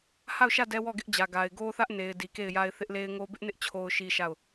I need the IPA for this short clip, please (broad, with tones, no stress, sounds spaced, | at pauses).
h a˦˨ ʊ̯ ʃ ä˦˨ d ɛ˦ w ɔ˦˨ ɡ ɪ˦ ʔ d͡ʑ ä˨ ɡ a˨ ɪ̯ ɡ o˦ θ ä˦ ʔ n e˨ ɪ̯ d i˨ k e˦˨ ɪ̯ j a˦ ɪ̯ θ ɪ˦ ʔ l e˦ ɪ̯ ŋ o˦ b ɪ˦ ʔ n ɪ˦ ʔ t͡ɕʰ o˦ ʊ̯ ʃ i˦ ʃ a˦˨ ʊ̯